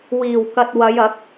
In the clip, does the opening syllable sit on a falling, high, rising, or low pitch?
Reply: low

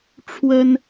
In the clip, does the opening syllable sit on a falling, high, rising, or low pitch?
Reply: high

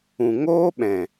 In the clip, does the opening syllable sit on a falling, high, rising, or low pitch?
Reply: low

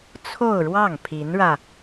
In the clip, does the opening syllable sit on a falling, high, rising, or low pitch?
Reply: falling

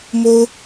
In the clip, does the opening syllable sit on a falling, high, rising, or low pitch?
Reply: high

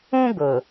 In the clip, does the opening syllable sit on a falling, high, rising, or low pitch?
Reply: high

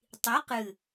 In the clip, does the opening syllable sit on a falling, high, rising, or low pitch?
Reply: rising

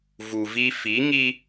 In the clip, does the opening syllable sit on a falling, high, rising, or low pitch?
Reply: low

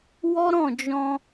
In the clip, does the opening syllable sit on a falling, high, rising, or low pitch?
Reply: high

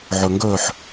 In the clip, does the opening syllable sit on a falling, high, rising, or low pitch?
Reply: low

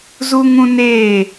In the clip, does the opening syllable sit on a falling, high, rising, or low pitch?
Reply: high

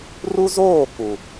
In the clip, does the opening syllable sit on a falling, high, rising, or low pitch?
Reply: high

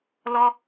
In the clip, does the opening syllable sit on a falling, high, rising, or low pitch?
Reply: high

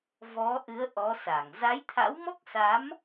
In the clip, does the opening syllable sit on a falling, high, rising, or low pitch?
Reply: rising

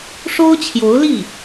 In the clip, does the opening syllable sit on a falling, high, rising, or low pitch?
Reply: high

